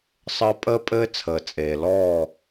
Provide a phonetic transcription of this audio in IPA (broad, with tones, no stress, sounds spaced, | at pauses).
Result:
sˤ əː˦ pʼ əː˦ pʼ ɘː˦ t͡sʰ əː˨ t͡sʼ eː˨ l ɔː˦˨